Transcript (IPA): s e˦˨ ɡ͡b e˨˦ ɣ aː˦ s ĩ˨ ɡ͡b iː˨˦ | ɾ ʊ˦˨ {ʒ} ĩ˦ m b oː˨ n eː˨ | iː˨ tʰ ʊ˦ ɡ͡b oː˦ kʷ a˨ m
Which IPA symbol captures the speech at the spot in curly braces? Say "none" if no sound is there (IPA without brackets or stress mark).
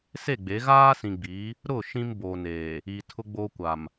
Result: ʃ